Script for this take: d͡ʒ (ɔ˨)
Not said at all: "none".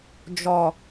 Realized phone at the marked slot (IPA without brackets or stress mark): ɔ˨